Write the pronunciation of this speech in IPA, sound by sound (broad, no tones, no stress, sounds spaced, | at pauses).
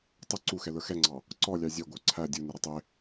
tˤ ə ǀ u x ɛ l ə˞ x ɛ ŋ͡ǀ ɑ | ǀ ɔ lʲ ɑ zʲ ɛ ɡʷ ə˞ ǀʰ æ dʲ u n ɪ ɾ ə tˤ ɪ